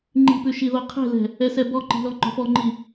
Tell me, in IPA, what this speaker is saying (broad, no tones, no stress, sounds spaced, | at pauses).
ŋ͡ǃ i̤ p ʉ ʃ i ð ɔ qʰ ɛ̤ l ɛ̤ | ɛ s ɛ b ɔ ǃ i̤ l ɔ ŋ͡ǃ ɔ̤ f ɔ ŋ͡ǃ i